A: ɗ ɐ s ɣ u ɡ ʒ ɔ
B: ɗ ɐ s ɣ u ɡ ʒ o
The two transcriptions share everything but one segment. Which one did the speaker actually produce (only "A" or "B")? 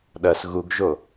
B